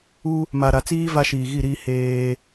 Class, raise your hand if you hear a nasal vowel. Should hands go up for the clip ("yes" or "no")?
no